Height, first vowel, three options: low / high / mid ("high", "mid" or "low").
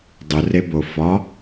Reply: high